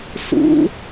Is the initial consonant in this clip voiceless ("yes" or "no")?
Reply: yes